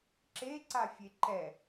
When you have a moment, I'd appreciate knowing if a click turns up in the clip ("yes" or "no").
yes